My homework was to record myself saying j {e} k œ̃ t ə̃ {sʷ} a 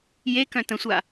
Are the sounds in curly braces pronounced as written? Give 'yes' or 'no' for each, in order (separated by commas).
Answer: yes, yes